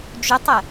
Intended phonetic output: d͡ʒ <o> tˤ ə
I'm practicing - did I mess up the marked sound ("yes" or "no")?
yes